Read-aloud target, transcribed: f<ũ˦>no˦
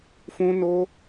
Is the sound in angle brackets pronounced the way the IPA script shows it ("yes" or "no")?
yes